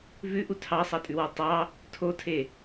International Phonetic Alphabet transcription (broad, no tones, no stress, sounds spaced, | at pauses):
v ʉ ʔ u tʰ ɑ sˤ ɑ tʼ ʉ w ɑ tˤ ɑ | tʰ o tʰ e